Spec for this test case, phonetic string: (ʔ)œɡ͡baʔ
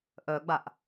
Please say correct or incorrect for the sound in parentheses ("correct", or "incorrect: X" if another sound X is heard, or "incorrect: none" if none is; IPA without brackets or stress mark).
correct